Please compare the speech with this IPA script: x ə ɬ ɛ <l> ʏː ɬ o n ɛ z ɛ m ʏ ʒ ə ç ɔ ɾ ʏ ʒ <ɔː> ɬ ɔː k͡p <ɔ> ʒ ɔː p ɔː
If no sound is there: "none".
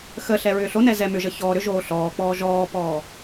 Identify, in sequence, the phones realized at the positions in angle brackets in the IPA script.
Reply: ɹ, oː, ɔː

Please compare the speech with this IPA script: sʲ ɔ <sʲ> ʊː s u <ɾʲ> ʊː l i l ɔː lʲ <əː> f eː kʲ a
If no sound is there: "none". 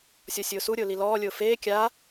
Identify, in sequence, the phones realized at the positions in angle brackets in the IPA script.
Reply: sʲ, ɾʲ, ʊː

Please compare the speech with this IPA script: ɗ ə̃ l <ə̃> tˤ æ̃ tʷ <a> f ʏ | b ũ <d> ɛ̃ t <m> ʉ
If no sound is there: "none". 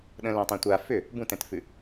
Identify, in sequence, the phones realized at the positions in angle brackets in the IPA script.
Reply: æ̃, a, t, f

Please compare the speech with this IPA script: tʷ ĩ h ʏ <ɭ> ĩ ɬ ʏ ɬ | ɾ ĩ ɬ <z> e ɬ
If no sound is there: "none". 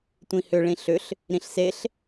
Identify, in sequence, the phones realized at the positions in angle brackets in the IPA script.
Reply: ɭ, s

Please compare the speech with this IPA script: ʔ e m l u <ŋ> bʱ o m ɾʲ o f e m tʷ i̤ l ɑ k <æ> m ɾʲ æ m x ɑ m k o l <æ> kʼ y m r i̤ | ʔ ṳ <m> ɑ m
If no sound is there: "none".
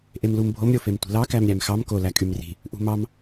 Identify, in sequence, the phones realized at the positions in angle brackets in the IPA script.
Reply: m, æ, æ, m

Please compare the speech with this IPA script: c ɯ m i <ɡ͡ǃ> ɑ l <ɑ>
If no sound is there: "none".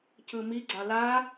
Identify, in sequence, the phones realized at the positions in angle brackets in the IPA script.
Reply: ɡ͡ǀ, a

